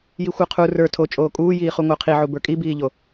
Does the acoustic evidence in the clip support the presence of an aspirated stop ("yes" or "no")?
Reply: yes